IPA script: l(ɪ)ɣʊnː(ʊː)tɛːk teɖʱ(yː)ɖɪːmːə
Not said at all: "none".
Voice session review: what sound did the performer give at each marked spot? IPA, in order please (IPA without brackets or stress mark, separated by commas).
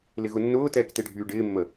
ɪ, ʊː, yː